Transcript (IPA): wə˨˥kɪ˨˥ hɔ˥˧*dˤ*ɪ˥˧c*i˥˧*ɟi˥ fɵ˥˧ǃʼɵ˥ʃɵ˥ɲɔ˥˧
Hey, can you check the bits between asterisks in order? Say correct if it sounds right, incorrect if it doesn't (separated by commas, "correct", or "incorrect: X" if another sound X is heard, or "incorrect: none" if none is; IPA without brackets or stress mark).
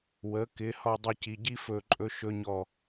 correct, incorrect: i˧